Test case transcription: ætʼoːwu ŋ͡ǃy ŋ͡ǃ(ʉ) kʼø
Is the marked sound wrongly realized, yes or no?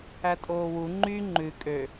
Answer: no